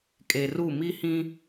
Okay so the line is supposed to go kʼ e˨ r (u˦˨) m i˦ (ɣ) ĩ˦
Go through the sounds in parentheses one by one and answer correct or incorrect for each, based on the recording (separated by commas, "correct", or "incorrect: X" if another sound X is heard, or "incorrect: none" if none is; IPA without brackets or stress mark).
correct, incorrect: h